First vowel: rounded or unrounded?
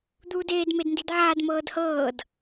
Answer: rounded